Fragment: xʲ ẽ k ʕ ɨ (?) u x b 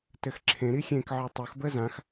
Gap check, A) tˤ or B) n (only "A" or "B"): A